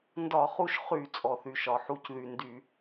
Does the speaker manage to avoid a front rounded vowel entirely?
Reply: no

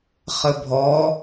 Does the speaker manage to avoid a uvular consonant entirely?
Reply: no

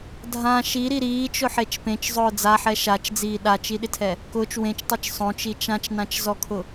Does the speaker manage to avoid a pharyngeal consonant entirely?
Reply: no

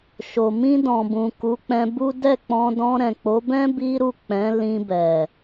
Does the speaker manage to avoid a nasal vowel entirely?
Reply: no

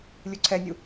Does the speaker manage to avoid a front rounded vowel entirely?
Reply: yes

